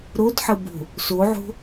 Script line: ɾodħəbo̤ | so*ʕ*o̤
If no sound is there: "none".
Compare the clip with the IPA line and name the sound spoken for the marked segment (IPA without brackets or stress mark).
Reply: ʕ